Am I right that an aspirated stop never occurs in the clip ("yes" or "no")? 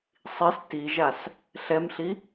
yes